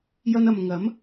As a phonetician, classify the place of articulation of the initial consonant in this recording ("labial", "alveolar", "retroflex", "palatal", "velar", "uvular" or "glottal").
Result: palatal